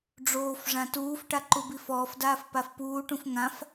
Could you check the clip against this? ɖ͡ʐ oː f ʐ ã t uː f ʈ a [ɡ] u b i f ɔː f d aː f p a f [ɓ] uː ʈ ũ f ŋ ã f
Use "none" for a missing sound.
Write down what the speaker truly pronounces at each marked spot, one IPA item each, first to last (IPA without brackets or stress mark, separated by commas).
ǃ, p